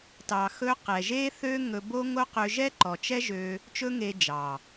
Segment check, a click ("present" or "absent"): present